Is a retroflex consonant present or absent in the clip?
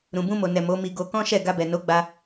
absent